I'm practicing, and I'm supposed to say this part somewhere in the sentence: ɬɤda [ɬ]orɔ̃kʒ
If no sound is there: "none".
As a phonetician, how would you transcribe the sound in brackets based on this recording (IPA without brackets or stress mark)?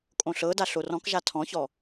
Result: ɬ